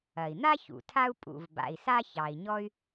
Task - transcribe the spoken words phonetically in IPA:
ɐ˩i̯n̪a˥çṵ˩ tʰa˥u̯ pʼṵ˩v ba̰˩i̯sa˥ çɑ˩i̯ ɲɔ˥y̯

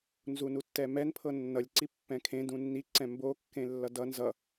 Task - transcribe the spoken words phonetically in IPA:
nzunutːɛmɛn pʰɤnːʌlʲ ǀipːɛ̃kʰẽ dũnːi ǀɛ̃mbo kːẽlːʌdʌ nzʌ

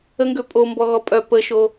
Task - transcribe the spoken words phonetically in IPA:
əŋɡø pʼombɔɣɔ pʼœ pəʃo

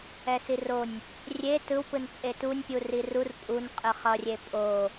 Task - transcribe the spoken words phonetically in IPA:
ɛsironʲ | rʲe tɯwpɯn t͡sʼetunʲ pʲurirur pʼun qʼɯχʌrʲe pʼo

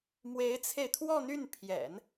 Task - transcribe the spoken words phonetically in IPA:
mwe˧˥ɪ̯t͡sʰe˧ɪ̯t̪ʰwɔ˥˧n̪y˥˩n pʰjɛ̰˨˩˦n

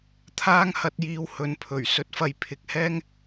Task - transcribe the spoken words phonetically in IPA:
t̪ʰaː˥ŋhɐ˧t̚jiː˧w hɵ˨˧npʰɵ˨˩ɥ sɵ˨t̚fɐ˨j pʰɪ˨˥k̚hɛː˥ŋ

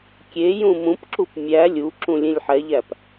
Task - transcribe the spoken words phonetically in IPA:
kʲe jũmũpǁup mʲæ lʲu ǁũlʲẽlʲħɛʎæp

